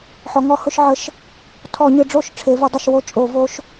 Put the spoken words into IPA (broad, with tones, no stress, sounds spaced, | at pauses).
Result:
ħ ɔ˩˧ ŋ ɔ˧˩˧ h ʊ˧˩˧ ʃ ʕ ə˧˥ ʃ | tʰ ɔ˧˩˧ ɲ ɨ˩˧ ɖ͡ʐ o˥˩ ʃ ʈ͡ʂʰ e˩˧ v ʊ˩˧ dˤ ʌ˥˩ ʃ w o˥˩ t͡ʃʼ o˧˩˧ v o˧˥ ʃ